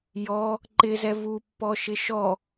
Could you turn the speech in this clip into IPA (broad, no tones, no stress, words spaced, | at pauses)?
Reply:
jɔ | ǃɪzɛ vupːɔʃɪ ʃɔ